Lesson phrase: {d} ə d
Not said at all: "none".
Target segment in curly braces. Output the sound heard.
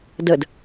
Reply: d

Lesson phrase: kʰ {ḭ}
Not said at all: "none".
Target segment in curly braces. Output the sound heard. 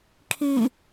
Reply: i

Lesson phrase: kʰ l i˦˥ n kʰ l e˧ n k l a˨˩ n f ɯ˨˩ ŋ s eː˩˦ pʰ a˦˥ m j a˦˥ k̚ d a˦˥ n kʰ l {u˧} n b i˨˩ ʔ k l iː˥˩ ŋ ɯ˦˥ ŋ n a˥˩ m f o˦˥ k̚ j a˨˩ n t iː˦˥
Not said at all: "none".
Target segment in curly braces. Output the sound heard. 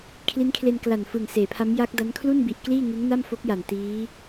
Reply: u˥˩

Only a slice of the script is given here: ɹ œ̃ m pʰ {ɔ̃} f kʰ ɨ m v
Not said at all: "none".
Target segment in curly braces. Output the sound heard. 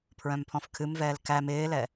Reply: ɔ̃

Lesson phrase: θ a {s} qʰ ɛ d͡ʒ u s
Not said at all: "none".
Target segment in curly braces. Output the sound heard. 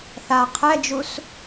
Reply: none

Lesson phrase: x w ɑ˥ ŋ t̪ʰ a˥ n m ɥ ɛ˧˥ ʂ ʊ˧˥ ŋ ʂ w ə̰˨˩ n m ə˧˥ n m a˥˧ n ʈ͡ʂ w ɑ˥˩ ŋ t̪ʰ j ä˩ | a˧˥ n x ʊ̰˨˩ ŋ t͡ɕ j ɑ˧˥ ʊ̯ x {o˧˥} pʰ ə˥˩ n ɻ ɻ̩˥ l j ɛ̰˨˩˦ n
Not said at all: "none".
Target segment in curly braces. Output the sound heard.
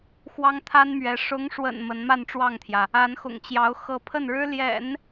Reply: ɤ˧˥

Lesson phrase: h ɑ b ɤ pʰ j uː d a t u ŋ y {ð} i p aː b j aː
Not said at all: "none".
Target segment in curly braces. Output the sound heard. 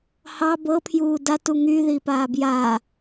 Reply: ð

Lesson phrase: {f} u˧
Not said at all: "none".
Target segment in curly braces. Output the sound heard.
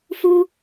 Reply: f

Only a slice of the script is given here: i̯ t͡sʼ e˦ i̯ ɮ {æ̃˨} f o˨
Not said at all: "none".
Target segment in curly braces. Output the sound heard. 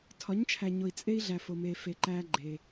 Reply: æ˨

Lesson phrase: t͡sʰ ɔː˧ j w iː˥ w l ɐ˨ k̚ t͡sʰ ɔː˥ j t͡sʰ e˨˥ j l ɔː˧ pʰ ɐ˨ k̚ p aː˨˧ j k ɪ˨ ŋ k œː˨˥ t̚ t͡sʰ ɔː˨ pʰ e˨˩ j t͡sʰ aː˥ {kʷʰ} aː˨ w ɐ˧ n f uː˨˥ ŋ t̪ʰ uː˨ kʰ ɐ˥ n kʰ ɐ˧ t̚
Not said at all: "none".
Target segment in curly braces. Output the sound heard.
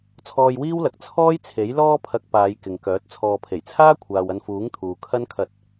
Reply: kʷʰ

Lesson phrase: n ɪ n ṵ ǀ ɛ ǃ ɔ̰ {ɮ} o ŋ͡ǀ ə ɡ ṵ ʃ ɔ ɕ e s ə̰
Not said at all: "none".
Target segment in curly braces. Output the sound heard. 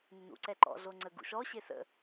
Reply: ɮ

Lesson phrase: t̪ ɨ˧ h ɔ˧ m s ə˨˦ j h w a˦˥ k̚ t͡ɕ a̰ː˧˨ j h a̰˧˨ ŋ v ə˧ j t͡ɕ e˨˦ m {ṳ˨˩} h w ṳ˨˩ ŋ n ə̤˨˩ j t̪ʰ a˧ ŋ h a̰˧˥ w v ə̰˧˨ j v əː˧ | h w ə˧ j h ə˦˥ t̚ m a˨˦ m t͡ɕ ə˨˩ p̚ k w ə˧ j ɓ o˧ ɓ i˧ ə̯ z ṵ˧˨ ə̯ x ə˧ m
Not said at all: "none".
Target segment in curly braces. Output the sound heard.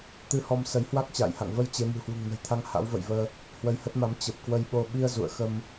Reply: ṳ˨˩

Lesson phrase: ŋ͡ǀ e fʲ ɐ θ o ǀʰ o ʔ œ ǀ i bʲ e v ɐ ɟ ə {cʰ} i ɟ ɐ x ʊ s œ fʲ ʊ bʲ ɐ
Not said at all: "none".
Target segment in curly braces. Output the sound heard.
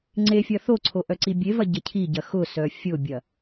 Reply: cʰ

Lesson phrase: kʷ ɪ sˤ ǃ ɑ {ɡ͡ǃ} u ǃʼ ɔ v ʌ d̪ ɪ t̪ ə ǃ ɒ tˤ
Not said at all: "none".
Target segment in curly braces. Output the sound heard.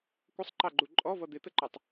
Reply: ɡ͡ǃ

